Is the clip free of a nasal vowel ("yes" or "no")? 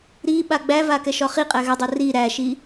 yes